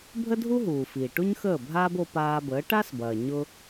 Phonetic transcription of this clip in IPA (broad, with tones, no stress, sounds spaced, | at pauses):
bʱ ə˥ dʱ u˥ ɦ uː˩ f iː˩ ʈ u˥ ɲ x əː˥˩ bʱ aː˥ b o˧ p aː˧ b əː˩˥ ʈ a˥ s b ɐː˩ ɲ ʊ˧